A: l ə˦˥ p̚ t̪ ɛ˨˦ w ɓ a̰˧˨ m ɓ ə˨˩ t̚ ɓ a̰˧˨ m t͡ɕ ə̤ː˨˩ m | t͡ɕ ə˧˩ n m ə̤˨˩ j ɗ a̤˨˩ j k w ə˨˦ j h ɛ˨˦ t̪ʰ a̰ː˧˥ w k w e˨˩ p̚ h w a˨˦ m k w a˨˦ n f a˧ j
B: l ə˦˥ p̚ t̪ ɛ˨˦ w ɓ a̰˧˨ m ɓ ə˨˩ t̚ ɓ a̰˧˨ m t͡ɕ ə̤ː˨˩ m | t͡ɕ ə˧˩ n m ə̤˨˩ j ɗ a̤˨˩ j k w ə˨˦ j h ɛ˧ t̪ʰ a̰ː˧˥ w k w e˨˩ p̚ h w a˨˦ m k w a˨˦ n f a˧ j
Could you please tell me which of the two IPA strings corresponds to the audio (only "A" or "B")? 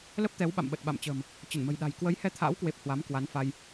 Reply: B